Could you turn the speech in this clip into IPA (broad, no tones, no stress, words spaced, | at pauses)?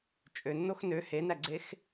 t͡ʃʼønːox nø henæɡ͡ǀex